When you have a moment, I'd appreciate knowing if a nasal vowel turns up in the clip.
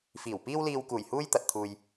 no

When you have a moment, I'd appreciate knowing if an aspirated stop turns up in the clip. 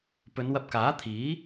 yes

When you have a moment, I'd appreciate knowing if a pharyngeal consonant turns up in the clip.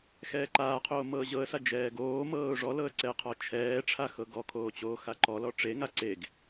no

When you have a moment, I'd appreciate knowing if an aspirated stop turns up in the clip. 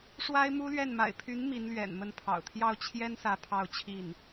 yes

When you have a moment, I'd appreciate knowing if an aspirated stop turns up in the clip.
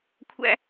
yes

